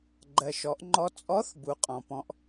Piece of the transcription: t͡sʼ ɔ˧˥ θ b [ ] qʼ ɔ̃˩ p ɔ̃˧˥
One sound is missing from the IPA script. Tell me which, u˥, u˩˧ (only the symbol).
u˩˧